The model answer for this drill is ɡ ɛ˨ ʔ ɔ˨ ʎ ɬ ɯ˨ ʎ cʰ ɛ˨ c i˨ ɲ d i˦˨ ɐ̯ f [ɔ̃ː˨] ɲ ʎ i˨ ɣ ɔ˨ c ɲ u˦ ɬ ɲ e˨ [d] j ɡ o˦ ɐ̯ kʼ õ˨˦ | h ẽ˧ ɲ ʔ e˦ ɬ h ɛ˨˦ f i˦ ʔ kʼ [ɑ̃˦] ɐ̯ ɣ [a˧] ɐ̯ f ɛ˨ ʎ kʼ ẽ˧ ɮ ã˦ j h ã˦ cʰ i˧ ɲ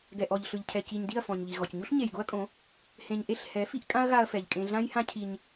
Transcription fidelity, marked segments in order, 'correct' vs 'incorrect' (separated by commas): incorrect, incorrect, incorrect, correct